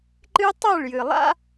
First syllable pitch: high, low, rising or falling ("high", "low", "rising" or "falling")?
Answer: high